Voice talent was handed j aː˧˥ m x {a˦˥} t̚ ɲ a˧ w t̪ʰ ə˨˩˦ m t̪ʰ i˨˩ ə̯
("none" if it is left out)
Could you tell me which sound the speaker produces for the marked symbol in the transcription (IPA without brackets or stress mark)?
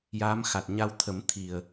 a˨˩